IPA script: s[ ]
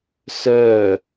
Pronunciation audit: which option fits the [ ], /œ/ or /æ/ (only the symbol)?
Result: œ